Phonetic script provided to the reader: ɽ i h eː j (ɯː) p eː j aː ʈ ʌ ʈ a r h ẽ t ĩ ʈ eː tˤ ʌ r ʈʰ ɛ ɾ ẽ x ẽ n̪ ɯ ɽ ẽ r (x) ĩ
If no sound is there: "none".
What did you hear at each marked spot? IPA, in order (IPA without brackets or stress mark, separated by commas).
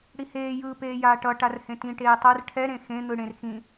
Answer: ɯː, x